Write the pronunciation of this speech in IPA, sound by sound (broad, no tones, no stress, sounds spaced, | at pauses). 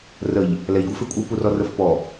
r ə ʎ | l ɛ ʎ ɡʷ ɛ f ɪ kʷʼ ɪ w p u r ɔ r ə f p ɔ